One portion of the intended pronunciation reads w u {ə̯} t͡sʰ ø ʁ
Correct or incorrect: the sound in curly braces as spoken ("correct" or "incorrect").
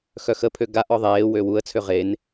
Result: correct